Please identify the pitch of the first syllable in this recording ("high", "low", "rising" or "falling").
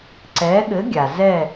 rising